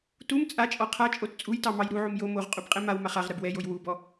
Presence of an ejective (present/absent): present